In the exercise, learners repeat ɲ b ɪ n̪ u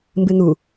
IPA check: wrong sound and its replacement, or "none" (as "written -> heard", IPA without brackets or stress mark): ɲ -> m